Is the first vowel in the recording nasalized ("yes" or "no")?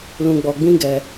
yes